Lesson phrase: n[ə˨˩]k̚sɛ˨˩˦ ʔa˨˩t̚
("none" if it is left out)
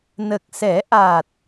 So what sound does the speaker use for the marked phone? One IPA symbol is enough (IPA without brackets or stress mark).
ə˨˩